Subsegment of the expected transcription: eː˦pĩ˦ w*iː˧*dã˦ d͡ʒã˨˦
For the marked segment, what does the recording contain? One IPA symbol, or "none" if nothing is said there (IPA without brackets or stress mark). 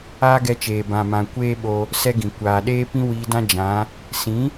iː˧